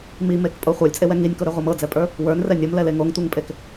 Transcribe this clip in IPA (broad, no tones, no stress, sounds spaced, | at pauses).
m i m e k pʼ o χʷ ə˞ lʲ t͡sʼ e w ɛ ŋ i nʲ k o ɾ e ʁʷ ɤ m ɤ d͡z ɛ pʼ ə˞ | w ə˞ n r ɛ nʲ o m l ɛ l e ŋ o ŋ tʷ ɤ ŋ pʼ e k